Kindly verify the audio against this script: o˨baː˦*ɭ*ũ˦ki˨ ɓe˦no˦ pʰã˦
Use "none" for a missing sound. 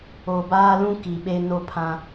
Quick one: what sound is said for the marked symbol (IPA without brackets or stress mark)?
l